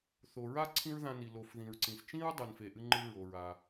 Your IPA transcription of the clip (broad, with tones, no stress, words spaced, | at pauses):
θo˩ɹa˥ ǀʰĩ˥ɹðã˧ni˩ lo˩f ðĩ˩ɹǀĩ˩s t͡ʃĩ˥ɹdˤɨ˩n fe˩ʔɨ˧ŋ͡ǃɨ˧ ɹo˩ɹa˩